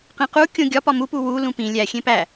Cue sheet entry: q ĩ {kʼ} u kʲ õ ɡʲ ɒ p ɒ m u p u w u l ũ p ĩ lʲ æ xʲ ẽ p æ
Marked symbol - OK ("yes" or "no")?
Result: no